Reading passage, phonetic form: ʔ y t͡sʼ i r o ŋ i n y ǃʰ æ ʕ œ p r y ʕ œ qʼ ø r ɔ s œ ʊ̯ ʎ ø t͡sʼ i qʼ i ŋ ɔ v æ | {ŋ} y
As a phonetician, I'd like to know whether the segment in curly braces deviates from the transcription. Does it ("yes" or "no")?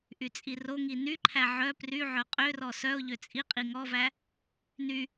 yes